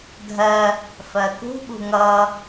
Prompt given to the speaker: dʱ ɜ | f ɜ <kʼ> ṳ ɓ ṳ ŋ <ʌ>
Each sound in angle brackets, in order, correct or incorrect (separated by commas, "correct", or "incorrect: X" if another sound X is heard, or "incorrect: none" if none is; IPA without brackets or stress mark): incorrect: k, correct